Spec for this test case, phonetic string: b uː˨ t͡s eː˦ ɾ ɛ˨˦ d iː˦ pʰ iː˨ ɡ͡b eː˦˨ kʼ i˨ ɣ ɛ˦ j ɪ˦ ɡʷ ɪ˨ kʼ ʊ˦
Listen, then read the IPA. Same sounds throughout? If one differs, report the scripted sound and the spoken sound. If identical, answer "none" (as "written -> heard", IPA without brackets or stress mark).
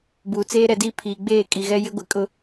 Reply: none